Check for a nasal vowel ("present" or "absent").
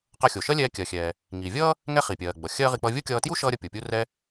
absent